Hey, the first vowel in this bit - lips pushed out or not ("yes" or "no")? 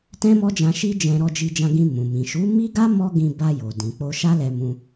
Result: no